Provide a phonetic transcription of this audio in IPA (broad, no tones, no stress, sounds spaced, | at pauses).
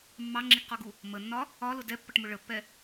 mː ɑ ŋ͡ǁ i ɡ q ɔ ɡ u | m ə nː ɒ | ɒ l ʊ d ɛ pː ʌ ʈ m ʊ ɭ ə pː ɛ